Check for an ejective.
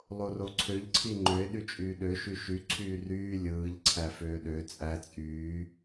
present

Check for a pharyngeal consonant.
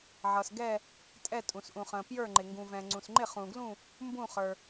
present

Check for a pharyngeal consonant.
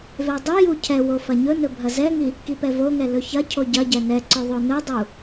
absent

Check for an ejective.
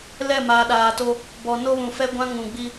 absent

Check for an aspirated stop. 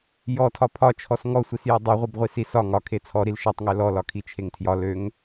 present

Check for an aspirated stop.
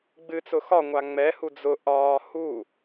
absent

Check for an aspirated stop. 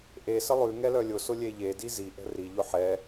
absent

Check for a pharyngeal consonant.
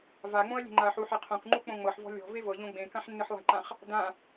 present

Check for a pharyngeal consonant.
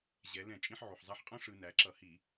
present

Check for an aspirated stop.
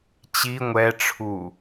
present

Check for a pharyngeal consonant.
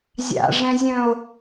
absent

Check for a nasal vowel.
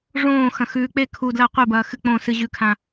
present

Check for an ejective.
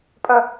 present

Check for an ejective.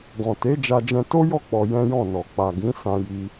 absent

